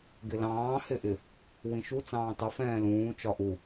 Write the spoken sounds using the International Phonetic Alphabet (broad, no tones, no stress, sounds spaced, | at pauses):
ɡ ɪ l ɑ̃ː h ɪ ʔ ɪ | w ĩ ʃ u t͡s ɑ̃ː tˤ ɪ f ɛ̃ː l ũː t͡ʃ ɒ ʔ u